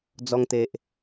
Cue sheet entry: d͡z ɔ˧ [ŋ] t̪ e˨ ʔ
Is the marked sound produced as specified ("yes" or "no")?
yes